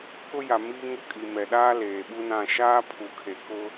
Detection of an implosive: present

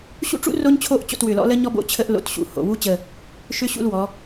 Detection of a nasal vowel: absent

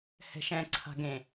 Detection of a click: present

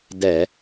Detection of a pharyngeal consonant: absent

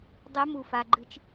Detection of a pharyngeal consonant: absent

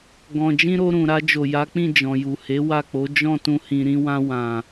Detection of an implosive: absent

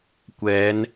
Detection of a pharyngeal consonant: absent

